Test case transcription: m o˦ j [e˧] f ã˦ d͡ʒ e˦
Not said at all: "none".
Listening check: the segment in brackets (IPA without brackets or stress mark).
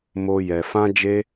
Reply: ɛ˧